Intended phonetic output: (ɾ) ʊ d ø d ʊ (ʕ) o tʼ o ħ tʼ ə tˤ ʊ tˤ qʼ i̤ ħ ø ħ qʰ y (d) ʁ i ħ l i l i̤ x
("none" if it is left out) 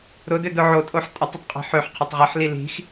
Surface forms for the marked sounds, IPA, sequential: ɾ, ʕ, tˤ

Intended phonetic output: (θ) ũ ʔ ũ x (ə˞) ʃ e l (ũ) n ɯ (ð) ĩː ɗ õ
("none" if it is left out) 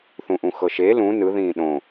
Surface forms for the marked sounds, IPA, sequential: θ, ɤ, ũ, ð

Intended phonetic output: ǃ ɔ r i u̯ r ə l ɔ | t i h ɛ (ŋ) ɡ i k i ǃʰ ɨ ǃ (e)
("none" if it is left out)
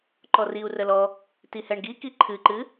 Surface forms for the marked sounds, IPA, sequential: ɳ, ɨ

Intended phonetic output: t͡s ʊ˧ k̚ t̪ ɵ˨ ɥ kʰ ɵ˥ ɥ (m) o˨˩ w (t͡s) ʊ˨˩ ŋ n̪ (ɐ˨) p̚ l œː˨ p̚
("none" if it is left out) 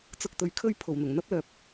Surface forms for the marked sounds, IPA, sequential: pʰ, n̪, ɐ˥

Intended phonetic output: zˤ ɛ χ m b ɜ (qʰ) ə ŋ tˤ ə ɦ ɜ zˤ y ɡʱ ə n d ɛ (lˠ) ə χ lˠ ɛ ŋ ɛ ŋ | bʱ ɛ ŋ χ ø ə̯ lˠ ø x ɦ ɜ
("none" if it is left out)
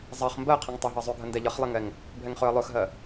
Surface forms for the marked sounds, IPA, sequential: qʰ, ʎ

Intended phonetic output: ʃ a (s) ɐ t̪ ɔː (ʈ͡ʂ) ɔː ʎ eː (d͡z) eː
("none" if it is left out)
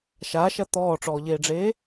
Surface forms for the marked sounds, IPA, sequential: ʃ, ʈ͡ʂ, ɖ͡ʐ

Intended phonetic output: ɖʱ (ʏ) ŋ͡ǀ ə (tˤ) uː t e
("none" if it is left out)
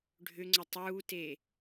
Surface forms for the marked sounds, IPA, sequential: ʏ, tˤ

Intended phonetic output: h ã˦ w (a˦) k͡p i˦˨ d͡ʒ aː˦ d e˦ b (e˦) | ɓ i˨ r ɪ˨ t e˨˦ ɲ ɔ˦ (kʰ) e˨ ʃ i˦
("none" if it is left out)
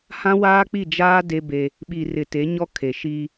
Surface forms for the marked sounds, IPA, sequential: aː˦, e˦, kʰ

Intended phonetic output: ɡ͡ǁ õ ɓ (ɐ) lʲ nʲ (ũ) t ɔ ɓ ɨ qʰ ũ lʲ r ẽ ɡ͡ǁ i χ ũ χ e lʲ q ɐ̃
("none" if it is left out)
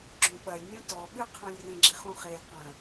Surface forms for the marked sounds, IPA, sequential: ɐ, ũ

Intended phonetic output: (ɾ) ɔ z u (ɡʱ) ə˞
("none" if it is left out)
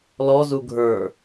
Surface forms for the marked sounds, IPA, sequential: l, ɡʱ

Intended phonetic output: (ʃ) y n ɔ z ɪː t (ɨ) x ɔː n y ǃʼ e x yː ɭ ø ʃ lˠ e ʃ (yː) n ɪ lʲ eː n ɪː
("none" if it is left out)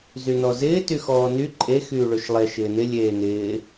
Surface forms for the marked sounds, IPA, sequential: z, y, ɪː

